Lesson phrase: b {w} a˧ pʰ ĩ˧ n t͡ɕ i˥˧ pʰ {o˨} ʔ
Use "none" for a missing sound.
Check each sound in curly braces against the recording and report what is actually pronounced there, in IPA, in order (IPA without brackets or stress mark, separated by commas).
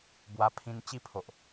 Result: w, o˨